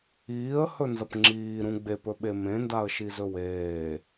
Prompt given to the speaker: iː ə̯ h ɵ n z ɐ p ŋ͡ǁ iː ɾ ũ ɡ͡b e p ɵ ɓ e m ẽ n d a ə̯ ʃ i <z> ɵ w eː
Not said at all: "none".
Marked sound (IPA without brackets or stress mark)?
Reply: z